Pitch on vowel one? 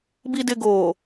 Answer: low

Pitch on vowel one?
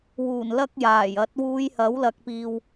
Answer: low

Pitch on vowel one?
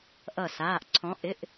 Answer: falling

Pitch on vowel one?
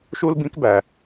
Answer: high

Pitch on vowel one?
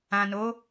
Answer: low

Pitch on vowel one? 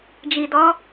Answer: low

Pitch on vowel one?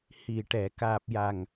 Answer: low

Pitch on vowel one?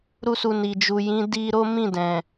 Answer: high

